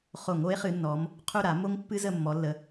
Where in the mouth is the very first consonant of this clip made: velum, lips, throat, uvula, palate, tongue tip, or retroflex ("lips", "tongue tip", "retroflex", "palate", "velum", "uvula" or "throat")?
uvula